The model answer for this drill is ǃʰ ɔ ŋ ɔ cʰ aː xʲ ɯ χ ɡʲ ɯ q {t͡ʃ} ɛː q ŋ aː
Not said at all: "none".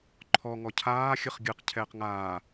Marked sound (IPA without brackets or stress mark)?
cʰ